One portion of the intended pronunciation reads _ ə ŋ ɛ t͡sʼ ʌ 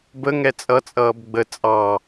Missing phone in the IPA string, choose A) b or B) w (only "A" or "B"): A